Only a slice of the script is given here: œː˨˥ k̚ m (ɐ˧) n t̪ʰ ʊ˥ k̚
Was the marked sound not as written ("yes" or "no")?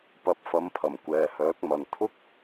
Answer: yes